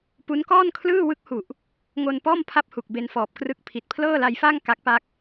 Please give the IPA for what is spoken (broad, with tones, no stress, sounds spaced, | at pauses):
p u˦˥ n k ɔː˥˩ n kʰ l ɯː˥˩ w ɯ˦˥ k̚ h u˨˩ ʔ | ŋ o˧ n p ɔː˥˩ m pʰ a˦˥ p̚ h u˨˩ k̚ b e˧ n f ɔː˨˩ p̚ k r ɯ˦˥ k̚ pʰ i˨˩ t̚ pʰ l ɤː˥˩ l a˧ j f a˥˩ ŋ k a˦˥ k̚ p a˥˩ k̚